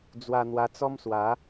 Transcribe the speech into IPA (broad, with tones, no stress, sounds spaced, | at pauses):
d͡z w a˧ n̪ w a˧ t͡s ɔ˦ m s w a˨˦